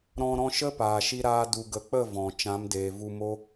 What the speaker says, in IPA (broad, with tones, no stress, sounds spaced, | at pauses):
ɾ ɔ̃˧ ɾ ɔ̃˧ ʃ ə˦ p aː˨ ʃ i˧ ɾ aː˧ d u˨ ɡ ə˨ k͡p ə˦˨ v ɔ̃˨ t͡ʃ ã˨˦ m d eː˨ v u˧ m o˦